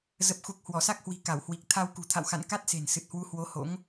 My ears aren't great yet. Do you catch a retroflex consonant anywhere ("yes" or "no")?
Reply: no